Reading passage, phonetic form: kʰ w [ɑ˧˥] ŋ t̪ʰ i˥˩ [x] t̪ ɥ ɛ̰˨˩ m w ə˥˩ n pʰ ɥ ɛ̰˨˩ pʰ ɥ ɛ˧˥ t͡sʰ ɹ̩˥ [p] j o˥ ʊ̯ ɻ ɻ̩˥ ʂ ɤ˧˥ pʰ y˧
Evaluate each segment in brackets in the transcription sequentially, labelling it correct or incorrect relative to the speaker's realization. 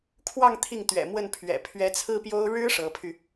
incorrect, incorrect, correct

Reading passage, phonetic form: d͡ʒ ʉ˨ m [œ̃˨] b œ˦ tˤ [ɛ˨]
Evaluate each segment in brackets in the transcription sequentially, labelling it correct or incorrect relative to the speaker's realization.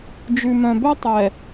correct, correct

